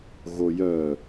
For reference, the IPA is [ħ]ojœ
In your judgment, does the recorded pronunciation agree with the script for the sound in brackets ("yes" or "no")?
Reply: no